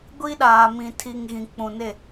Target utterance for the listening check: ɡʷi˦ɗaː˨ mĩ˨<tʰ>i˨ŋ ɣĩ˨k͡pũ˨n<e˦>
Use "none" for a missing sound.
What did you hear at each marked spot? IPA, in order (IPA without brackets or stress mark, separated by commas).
tʰ, e˦˨